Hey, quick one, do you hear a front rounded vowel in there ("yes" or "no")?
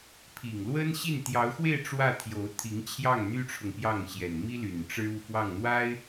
yes